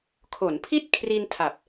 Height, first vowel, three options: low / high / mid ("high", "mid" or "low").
mid